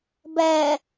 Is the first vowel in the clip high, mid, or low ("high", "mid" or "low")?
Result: low